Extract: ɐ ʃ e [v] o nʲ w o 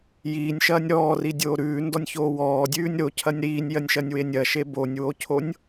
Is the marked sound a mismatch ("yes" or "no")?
yes